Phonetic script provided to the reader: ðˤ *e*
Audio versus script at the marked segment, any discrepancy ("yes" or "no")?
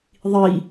yes